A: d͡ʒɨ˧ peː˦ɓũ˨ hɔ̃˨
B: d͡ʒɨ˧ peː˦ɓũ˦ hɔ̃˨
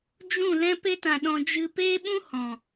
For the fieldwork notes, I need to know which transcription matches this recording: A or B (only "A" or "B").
B